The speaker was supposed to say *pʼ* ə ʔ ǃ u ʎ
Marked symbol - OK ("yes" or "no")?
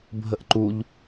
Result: no